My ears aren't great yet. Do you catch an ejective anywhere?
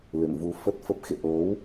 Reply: no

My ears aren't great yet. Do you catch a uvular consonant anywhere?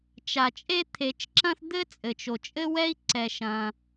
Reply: no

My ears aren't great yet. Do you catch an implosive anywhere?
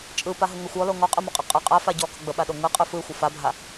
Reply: yes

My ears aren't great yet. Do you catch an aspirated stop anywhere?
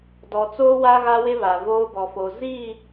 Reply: no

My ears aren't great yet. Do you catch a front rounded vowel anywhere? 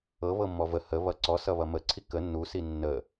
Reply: no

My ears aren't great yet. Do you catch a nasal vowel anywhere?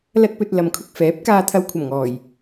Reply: no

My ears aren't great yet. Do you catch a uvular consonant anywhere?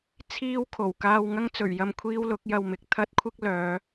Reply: no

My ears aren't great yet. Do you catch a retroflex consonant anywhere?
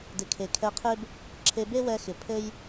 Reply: no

